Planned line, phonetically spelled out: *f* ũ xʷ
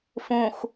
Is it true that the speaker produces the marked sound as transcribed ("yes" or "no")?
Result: yes